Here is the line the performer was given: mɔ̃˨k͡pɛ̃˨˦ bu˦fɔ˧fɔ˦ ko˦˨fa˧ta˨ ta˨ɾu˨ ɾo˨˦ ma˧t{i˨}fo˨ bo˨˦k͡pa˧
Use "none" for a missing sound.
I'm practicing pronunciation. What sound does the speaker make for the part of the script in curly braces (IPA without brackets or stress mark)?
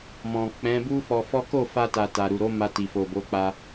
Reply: i˨